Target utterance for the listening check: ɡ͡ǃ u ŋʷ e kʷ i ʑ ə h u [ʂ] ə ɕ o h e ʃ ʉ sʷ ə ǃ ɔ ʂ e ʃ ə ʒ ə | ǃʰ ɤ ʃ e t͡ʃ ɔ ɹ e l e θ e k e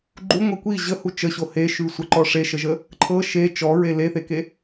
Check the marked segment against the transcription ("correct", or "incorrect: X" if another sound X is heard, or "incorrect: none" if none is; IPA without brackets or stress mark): incorrect: t͡ʃ